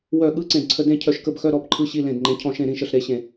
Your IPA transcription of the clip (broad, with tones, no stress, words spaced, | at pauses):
wœ˦˨ ɠɯ˧˥˧ ǀẽ˦˨dǀʰə˧˥˧ dẽ˦˨ cʰœ˦˨ʃkə˧˥˧bxœ˧˥˧ ɾɔ˧˥˧bǃʰɯ˧˥˧ɕi˧˥˧ lẽ˦˨dŋ͡ǃẽ˧˥˧ cʰɔ̃˦˨ʃẽ˦˨ɾĩ˦˨ʃə˦˨ɬ ɾe˧˥˧ɕẽ˦˨